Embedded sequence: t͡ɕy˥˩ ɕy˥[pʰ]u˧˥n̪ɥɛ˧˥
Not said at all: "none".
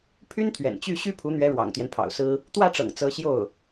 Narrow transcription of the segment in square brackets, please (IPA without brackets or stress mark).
pʰ